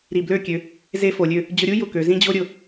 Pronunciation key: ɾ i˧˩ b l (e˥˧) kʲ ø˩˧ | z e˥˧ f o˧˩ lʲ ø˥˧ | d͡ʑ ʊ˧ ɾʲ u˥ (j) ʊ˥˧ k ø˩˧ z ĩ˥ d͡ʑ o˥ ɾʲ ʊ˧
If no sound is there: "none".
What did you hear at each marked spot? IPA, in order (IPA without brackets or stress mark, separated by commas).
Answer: ø˥˧, j